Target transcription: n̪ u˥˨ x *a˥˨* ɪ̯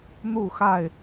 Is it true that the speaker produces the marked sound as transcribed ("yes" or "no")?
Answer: yes